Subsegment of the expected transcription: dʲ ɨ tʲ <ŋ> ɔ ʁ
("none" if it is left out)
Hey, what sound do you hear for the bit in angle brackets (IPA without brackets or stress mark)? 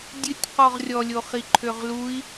q